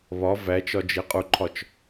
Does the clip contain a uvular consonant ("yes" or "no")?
yes